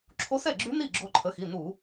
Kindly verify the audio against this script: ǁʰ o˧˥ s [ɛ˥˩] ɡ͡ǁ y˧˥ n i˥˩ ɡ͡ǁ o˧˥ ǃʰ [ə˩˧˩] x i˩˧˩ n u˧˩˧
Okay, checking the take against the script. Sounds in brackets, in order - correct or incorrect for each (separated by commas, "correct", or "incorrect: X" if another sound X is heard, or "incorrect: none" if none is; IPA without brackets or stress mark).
correct, correct